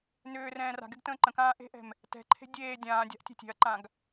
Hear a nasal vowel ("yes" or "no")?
yes